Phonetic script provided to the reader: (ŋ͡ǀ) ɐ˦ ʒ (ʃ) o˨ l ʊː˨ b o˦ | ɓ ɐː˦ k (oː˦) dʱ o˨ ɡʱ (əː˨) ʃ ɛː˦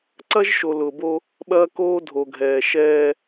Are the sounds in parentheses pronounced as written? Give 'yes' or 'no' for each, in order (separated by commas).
no, yes, yes, no